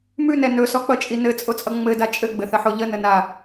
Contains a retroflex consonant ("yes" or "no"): no